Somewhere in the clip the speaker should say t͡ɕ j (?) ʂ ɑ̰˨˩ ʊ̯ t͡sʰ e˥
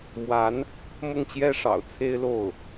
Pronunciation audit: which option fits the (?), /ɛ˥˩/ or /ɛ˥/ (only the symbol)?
ɛ˥